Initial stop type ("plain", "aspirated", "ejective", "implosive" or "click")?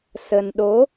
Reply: implosive